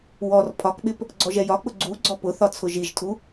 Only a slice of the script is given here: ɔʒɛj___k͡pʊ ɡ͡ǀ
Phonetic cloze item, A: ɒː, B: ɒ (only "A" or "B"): B